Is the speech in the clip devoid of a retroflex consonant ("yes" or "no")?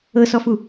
yes